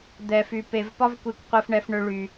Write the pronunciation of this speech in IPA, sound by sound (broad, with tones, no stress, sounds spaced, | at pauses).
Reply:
d̪ ɛ˨ f y˨ p e˨ v p ɒ˦ v kʷ i˨ kʷ qʷ e˦ f ɳ ɛ˦ f ɳ ø˦ ɭ y˨